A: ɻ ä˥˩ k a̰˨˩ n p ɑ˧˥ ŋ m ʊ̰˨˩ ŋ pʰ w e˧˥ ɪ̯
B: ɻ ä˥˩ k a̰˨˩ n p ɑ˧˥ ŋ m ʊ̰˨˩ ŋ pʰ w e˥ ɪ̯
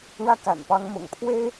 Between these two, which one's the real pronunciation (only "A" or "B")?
B